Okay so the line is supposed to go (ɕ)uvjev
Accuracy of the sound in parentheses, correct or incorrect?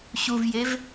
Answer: correct